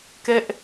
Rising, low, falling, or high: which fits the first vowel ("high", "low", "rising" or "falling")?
high